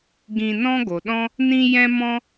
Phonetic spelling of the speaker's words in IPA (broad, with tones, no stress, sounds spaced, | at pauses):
ɡ ĩ˧ n ɔ̃˦ ɡ o˨ ɗ ɔ̃˦ | n ĩ˦ j ɛ̃˦ m ɔ̃˦